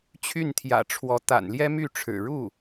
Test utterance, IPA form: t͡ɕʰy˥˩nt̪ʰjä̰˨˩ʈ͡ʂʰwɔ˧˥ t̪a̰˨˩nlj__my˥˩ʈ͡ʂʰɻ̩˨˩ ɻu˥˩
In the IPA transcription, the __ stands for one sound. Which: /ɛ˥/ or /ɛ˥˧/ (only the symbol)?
ɛ˥